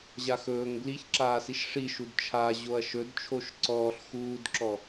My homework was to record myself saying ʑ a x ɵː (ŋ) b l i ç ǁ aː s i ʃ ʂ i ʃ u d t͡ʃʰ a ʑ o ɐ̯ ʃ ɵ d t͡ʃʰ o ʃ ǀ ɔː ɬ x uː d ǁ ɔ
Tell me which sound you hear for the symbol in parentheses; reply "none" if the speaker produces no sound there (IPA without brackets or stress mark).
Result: ŋ